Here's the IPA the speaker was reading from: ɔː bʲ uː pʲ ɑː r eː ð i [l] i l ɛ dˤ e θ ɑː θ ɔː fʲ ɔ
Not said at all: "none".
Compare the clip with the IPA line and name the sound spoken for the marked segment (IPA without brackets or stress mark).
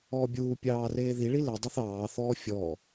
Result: ɭ